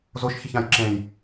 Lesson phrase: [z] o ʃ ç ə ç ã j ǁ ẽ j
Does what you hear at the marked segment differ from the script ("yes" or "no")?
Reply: no